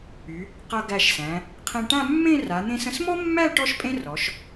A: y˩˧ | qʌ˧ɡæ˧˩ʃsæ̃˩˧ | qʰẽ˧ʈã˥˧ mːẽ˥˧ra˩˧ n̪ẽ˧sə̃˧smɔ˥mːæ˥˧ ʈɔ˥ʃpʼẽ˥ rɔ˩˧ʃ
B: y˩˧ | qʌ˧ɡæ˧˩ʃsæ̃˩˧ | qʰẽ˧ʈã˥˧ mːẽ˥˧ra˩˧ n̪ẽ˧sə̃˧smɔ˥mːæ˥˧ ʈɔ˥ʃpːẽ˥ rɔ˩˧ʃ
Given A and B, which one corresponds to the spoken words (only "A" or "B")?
A